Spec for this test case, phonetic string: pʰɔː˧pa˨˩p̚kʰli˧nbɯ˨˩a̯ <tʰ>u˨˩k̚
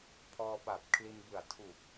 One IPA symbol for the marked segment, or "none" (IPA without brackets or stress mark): tʰ